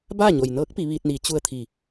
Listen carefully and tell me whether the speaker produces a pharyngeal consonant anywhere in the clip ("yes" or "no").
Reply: no